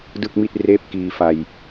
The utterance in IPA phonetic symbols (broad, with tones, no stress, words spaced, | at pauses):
dɯ˥˩k̚mi˥˩t̚ reː˥˩p̚kiː˧ fa˧j